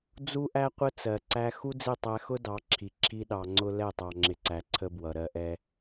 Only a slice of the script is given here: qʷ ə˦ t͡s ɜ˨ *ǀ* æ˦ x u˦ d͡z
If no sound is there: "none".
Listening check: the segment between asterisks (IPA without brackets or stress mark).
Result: ǀ